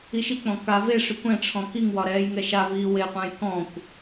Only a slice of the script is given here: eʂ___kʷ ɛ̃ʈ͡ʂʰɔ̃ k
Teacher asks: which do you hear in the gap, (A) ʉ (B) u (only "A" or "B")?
A